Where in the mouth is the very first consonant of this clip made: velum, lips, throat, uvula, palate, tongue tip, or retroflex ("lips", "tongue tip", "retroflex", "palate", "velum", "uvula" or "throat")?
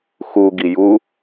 velum